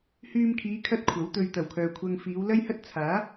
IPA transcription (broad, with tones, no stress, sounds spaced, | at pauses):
h yː˧ m kʰ iː˨˧ kʰ ɐ˥ t̚ kʷʰ ɐ˨˥ w t̪ ɵ˧ ɥ t̪ ɐ˨˩ w kʰ œː˨ kʷʰ ɐ˧ ŋ f iː˨˧ w l ɐ˥ j h ɐ˥ t̚ t͡sʰ aː˨˥